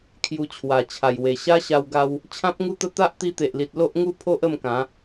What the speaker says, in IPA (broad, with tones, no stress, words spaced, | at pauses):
kʰju˧t͡ɕʰwa˨˩t͡ɕʰa˨˩j we˨˩ɕa˦ɕa˧w ɡa˦w | t͡ɕʰã˦p̚ŋu˥˧t̪ə˥˧ t̪a˦ʔt̪i˧t̪e˨ʔli˨t̚ lo˦ʔŋu˦pʰo˦ʔ ə˥˧mkã˨˦